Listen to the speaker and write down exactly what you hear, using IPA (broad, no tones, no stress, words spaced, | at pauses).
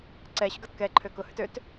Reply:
ǀɛɕʊɡɐt kɛǃʰø kʊhʏt øt